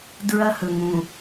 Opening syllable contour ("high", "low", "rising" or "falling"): high